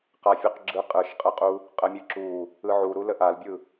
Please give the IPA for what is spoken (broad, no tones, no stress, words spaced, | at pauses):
qafʲuqɡ͡ǁɯ qʼɯʃqʼəqʼu | qʼəmʲɯǁu | ɯʕuɾulə ʔalbʲɯ